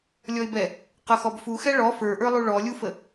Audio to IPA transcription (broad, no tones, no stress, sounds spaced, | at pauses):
lʲ ɔ ɪ̯ b ɛ | q ʌ x ɔ b f u x ɛ ɭ ɔ f ə˞ ʔ ə˞ lˠ u ɭ ɔ lʲ u f ə